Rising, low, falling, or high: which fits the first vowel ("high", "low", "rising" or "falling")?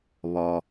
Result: low